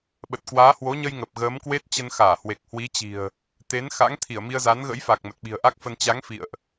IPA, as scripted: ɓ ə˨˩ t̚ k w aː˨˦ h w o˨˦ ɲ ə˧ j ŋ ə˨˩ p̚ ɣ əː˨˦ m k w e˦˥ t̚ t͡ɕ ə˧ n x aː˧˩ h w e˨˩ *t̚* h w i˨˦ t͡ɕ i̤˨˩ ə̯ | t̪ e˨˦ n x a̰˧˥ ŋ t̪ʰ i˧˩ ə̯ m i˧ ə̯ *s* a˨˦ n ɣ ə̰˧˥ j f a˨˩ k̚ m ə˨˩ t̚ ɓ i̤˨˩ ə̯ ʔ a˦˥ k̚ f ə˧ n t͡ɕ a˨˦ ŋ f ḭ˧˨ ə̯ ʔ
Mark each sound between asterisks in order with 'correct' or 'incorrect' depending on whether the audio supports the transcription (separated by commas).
incorrect, incorrect